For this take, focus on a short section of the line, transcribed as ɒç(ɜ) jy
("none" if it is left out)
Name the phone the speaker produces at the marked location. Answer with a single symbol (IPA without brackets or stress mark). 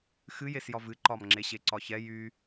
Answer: ɛ